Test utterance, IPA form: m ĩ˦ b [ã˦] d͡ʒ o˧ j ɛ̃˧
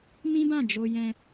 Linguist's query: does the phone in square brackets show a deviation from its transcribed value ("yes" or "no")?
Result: yes